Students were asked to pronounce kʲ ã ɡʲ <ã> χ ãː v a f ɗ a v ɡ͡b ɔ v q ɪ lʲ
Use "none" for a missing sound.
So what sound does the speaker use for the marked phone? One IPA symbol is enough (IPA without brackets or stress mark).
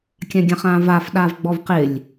ã